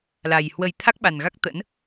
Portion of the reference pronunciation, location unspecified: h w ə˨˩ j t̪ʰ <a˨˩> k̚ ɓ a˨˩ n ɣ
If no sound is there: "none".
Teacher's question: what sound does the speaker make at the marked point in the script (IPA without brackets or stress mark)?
a˦˥